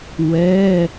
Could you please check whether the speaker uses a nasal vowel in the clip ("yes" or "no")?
no